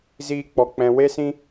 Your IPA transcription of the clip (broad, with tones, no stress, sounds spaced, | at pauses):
z iː˦ k͡p ɔ˧ k͡p ɛ̃˧ w e˦ s ĩ˦